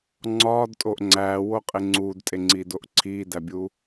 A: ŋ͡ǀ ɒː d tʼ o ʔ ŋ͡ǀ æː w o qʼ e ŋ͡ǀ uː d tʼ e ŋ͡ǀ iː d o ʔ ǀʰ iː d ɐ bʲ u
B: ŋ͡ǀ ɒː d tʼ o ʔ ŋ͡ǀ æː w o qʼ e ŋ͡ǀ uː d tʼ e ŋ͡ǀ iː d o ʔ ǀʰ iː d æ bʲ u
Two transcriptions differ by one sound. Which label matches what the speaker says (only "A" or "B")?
B